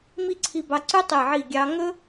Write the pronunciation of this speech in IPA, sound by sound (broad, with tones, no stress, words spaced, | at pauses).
mi˥˧ǀʰi˧bɑ˧ǀʉ˥ tˤe˧˩ʕi˧˩ ɡʲɑ˧ ŋɵ˥